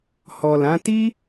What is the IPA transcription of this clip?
h ɔ˨ l ã˨˦ t i˦

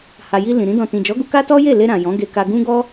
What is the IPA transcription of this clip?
h a˧ j i˦ l ĩ˧ ɾ ĩ˦ d ɔ̃˦˨ t ĩ˨ d͡ʒ ɔ˨˦ ɡ u˧ k a˦ t ɔ˦ j e˦˨ l e˧ ɾ ã˨ j ɔ̃˨˦ ɡ e˧ k a˧ ɡ ũ˦ ɡ ɔ˦

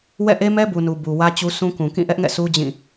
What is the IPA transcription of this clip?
w ɛ̰˦˨ ʔ e˦ m ɛ˦ b u˨ n u˨ b u˨ w ä˦ t͡ɕ u˦ sʰ ũ˦ k ũ˨ k ĩ˦˨ ʔ ɛ˦ ʔ ŋ ɛ̰˦˨ sʰ u˦ d͡ʑ ĩ˦˨

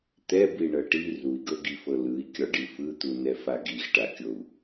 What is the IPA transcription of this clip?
t̪ ɛ b i ɳ ɤ ʈ i r u i̯ ɡ ɤ ɡ i f ɤ l ɯ i̯ kʲ ɔ ɖ i f ɯ t̪ u n ɛ f a ɡ i x ʈ a kʲ o u̯

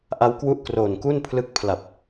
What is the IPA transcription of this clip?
ʔ a˦˥ w k w u˦˥ ʔ k r oː˨˩ n k u˥˩ n pʰ l ɯ˦˥ k̚ pʰ l a˨˩ p̚

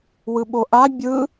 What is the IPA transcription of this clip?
w ɯ ɓ o ʔ a bʲ ɯ

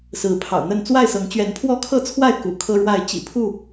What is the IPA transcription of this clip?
s ɹ̩˨˦ pʰ ɑ̰˨˩ ʊ̯ n̪ ə˥˨ n t͡s w a˥˨ ɪ̯ s ɤ˨˦ ŋ t͡ɕ ɥ ɛ˨˦ n pʰ w ɔ˦ kʰ ɤ˥˨ t͡sʰ w a˥˨ ɪ̯ k ṵ˨˩ kʰ ɤ˦ ɻ w a˥˨ ɪ̯ t͡ɕ ḭ˨˩ pʰ u˥˨

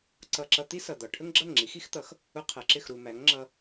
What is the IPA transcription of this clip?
ǀ ʌ˧ ǁ ʌ˧ t̪ i˥ s ʌ˩ d̪ ɒ˩ ʈʰ ə˥ ŋ ɡ͡ǁ ʌ˥˩ ŋ ŋ͡ǁ i˩˥ x i˥ x t̪ ʌ˩˥ x | ʊ˧ qʰ ɜ˩ ǁ ɪ˥˩ x ɾ u˩ m æ˩˥ ŋ ŋ͡ǁ ʌ˧

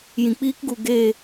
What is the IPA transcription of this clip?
j ĩ˨ k͡p iː˦ k ɡ u˨ ɡ eː˦˨

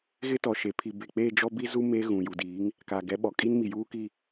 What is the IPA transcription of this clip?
ɣ ɪ˦ t ɔ˨ ʃ e˨ pʰ i˨ b e˨ k͡p e˦˨ d͡ʒ ɔ˦ b i˦ z u˦ m e˦ ɣ ũ˨ j u˨ d iː˨˦ ŋ | k a˨ ɡ ɛ˨˦ ɓ ɔ˨ kʼ i˦ n m i˨ j uː˦ k i˦˨

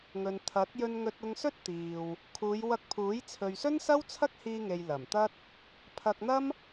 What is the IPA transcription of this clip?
ŋ ɵ˨ n t̪ʰ ɐ˨˥ t̚ j ɵ˧ n ŋ ɵ˧ t̚ ʊ˧ ŋ s ɵ˥ t̚ t̪ iː˨ w | kʰ uː˨˧ j w ɐ˧ k̚ pʰ uː˨˥ j t͡sʰ ɵ˨ ɥ s ɵ˥ n s ɐ˥ w t͡sʰ ɐ˥ k̚ h iː˧ ŋ e˨ j l ɐ˨˩ m t̪ ɐ˥ t̚ | pʰ ɐ˧ k̚ n̪ ɐ˥ m

